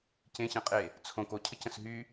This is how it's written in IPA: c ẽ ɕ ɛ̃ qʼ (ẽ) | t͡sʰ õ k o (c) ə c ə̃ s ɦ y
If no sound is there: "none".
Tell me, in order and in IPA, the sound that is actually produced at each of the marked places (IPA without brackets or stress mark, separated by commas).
e, cʰ